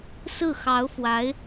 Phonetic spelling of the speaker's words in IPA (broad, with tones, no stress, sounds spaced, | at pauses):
s ɹ̩˥˩ x ɑ˧˥ ʊ̯ f w a˧˥ ɪ̯